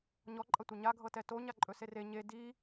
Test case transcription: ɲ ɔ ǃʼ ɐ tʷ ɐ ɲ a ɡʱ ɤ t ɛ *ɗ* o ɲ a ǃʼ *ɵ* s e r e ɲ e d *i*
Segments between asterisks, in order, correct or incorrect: incorrect: t, correct, correct

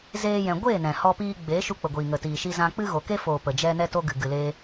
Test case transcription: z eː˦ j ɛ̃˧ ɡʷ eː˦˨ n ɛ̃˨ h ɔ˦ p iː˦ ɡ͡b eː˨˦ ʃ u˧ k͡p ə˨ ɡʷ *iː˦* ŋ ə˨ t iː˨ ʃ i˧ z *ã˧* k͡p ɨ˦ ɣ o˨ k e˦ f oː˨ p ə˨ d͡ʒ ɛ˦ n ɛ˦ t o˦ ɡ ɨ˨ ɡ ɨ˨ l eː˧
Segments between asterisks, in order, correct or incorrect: incorrect: iː˨, correct

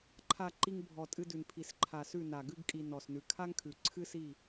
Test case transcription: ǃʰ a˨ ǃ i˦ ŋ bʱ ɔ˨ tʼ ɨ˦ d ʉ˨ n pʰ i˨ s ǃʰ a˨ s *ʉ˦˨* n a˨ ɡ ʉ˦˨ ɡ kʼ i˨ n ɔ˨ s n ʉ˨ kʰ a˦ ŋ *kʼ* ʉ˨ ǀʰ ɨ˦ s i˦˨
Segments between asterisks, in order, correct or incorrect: correct, incorrect: kʰ

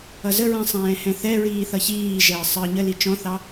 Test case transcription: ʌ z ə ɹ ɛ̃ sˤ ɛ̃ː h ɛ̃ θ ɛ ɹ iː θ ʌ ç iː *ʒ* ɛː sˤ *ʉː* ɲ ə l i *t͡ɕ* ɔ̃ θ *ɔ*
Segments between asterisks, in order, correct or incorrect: correct, incorrect: əː, incorrect: t͡ʃ, incorrect: ɑ

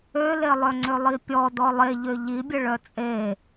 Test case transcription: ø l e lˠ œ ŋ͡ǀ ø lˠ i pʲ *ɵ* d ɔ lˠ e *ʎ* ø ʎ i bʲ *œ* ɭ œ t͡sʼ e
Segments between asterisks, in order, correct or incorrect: incorrect: ɔ, correct, incorrect: ə

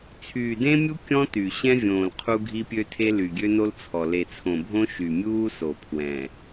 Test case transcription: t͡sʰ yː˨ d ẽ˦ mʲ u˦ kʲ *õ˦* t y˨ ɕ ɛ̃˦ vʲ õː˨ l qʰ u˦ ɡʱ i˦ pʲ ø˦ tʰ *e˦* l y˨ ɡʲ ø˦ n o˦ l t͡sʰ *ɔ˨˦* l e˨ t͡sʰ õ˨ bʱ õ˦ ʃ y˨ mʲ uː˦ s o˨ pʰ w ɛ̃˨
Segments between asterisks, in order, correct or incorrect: incorrect: ɔ̃˦, correct, incorrect: ɔ˨

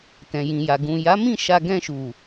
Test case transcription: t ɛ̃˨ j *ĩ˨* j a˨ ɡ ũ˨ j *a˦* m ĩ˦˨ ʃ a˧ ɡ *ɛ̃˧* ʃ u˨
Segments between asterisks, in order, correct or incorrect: correct, incorrect: a˨˦, correct

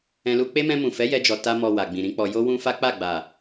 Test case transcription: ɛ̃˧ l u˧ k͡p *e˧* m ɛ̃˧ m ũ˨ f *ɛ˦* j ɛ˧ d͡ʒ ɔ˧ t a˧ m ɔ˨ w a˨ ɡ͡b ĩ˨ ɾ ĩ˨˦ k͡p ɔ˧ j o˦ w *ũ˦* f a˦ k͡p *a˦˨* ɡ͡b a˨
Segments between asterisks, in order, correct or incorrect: incorrect: e˦, incorrect: ɛ˨˦, correct, correct

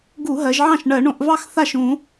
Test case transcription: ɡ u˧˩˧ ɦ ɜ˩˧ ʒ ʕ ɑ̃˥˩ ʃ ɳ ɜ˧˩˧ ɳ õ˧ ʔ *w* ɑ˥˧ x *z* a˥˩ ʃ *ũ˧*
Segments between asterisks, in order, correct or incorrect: incorrect: v, incorrect: θ, incorrect: ũ˧˩˧

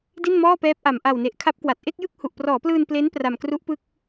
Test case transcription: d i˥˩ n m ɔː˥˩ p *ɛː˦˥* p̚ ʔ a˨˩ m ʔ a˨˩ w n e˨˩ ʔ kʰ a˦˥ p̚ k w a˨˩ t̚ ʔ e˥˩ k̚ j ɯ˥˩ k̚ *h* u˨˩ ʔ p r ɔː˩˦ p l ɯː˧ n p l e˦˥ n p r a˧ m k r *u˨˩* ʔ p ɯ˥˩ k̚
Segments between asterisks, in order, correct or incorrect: correct, correct, incorrect: u˦˥

